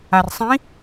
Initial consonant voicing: voiced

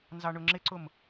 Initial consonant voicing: voiced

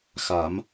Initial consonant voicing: voiceless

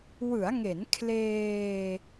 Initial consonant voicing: voiced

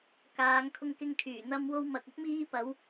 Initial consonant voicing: voiceless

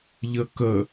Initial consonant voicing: voiced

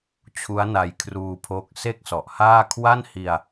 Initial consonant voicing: voiceless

